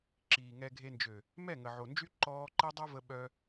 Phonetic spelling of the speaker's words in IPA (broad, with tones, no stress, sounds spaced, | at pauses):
ǁ iː˨ ŋ ɛ˧ ɡʱ e˧ n d͡ʒ ø˨ | m ɛ˦˨ ŋ ə˨ ʕ o˨ n d͡ʒ y˦ ǃ ɔː˦ ǃ e˦ dˤ o˦ v ə˧ ɓ œ˦